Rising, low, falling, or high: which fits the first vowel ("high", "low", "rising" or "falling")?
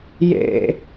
low